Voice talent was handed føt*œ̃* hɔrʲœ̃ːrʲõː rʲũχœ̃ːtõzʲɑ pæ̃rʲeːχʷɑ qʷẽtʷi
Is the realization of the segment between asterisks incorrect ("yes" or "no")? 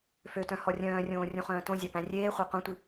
no